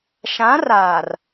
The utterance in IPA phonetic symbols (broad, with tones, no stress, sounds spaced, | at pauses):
ʃ ã˨˦ r aː˨ r